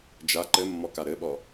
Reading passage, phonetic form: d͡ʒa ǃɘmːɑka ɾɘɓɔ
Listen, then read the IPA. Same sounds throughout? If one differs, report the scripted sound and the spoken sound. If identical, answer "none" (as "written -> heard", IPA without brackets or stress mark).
ɑ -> ɔ